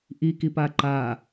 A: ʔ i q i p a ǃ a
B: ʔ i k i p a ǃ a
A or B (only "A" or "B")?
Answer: B